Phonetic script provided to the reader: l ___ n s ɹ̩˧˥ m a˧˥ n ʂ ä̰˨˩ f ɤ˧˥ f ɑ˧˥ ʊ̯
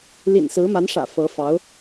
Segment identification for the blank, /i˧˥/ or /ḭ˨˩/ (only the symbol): ḭ˨˩